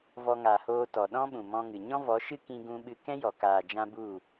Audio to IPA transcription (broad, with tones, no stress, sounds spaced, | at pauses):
v ɔ˧ ŋ a˨ h oː˧ t ɔ˨ ɗ ɔ̃˦ ɓ ũ˨ m ɔ̃˧ ŋ ɨ˨ ɲ ɔ̃˦ v ɔ˨˦ ʃ ɨ˦ k ĩ˦ ɡ ũ˦ ɓ ɨ˦ k ɛ̃˦ j ɔ˨ k aː˨ d͡ʒ ã˧ b u˦˨